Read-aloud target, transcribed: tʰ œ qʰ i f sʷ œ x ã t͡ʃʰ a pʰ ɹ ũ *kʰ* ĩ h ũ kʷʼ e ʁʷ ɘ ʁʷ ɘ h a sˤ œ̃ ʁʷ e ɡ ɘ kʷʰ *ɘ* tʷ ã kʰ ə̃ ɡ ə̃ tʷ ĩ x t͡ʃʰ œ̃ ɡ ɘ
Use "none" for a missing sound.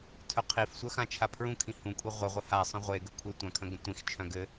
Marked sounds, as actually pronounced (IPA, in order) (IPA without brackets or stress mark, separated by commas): kʰ, e